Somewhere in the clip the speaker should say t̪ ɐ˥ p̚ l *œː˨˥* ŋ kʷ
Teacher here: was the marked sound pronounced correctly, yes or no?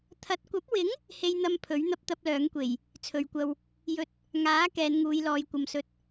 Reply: yes